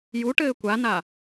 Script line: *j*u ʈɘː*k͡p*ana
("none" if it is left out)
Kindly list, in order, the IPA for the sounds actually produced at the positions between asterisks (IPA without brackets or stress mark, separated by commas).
j, kʷ